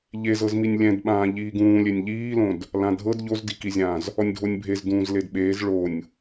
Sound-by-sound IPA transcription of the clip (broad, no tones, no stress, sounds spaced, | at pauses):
ʎ e z ɤ z m i nʲ lʲ ɛ̃ d ɓ ãː ʎ iː ɡ ũː lʲ e nʲ ʎ iː l õ d | l ã dʱ ɤ d ʎ o z d i k i zʲ ãː z | ɔ nʲ dʱ o nʲ bʱ e z d ũː z l e d ɓ eː z ɭ o nʲ